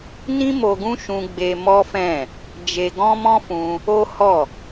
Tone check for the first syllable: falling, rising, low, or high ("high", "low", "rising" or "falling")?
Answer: high